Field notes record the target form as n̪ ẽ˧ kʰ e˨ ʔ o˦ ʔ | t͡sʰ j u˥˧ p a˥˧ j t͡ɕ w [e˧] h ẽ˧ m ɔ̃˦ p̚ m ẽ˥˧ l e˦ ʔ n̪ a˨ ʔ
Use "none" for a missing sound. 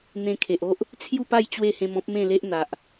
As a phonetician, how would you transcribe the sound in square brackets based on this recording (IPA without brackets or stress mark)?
e˥˧